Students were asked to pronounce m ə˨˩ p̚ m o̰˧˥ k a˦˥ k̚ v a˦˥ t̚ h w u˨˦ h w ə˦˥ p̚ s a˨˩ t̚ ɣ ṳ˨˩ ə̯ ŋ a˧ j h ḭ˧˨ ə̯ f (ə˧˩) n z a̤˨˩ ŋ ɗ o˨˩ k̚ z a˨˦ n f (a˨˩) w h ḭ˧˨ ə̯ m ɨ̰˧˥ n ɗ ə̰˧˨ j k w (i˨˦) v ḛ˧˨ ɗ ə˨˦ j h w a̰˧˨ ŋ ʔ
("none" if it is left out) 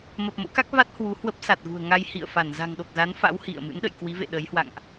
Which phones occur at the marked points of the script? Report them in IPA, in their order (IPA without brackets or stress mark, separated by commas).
a˧˩, a̰˧˥, i˨˦